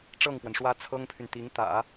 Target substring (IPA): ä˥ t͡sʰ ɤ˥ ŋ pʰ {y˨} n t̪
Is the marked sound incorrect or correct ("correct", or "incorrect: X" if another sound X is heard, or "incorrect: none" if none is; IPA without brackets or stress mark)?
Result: correct